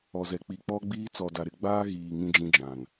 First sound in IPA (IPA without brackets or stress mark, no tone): ɔ